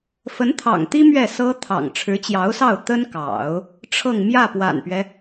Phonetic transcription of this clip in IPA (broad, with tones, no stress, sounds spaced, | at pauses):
f ə˧˥ n t̪ʰ ɑ̰˨˩ ŋ t̪ i˥ m ɥ ɛ˥˩ s ɤ˥ t̪ʰ ɑ̰˨˩ ŋ ʈ͡ʂʰ ɻ̩˧˥ t͡ɕ j ɑ˧˥ ʊ̯ s ɑ˥˩ ʊ̯ t̪ ə˥ n k ɑ̰˨˩˦ ʊ̯ | ʈ͡ʂʰ ɤ˥˧ ŋ m j ä˥˩ p w a̰˨˩ n p ɥ ɛ˦